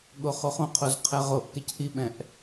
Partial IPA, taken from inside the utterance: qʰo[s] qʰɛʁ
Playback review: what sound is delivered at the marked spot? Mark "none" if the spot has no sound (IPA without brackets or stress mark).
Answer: z